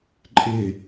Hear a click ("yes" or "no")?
yes